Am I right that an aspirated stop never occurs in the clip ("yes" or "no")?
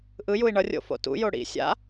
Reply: yes